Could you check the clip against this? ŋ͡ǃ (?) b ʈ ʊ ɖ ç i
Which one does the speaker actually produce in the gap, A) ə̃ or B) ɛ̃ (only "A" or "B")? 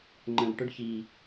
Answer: A